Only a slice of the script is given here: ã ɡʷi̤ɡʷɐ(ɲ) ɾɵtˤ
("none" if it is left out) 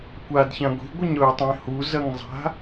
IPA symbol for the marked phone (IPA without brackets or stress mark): ɲ